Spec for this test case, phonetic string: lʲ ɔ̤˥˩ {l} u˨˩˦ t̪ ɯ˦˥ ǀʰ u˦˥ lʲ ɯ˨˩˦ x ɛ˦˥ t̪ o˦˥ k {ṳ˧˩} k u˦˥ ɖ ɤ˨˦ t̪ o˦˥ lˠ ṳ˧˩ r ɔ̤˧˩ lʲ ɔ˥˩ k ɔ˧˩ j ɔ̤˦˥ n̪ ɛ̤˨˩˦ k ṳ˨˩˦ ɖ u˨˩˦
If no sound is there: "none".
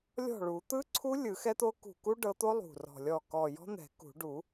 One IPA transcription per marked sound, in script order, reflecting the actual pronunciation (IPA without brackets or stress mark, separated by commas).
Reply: ɭ, ṳ˧˩